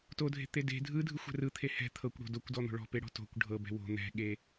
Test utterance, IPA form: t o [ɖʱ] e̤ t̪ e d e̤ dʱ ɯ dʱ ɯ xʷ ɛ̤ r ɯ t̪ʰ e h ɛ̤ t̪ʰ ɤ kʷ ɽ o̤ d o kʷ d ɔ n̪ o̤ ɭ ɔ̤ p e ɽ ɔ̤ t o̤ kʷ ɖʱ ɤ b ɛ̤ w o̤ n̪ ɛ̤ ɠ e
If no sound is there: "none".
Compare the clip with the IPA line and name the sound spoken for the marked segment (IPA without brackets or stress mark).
dʱ